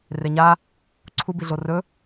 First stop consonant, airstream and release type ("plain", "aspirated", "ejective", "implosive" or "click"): click